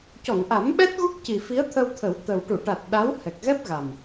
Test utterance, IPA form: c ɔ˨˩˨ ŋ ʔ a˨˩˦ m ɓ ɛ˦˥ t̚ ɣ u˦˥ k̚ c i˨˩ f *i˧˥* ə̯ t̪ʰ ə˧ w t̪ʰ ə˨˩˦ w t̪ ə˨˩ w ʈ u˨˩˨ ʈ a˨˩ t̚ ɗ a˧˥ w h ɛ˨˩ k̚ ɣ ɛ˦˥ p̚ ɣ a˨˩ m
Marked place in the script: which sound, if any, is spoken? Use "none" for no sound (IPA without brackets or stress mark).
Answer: i˧˥